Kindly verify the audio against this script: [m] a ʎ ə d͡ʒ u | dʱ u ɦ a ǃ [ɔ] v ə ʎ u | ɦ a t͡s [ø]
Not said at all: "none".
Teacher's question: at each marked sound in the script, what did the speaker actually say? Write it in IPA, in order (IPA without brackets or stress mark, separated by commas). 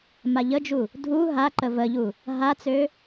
m, ə, ø